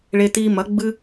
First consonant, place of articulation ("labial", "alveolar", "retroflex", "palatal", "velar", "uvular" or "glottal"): retroflex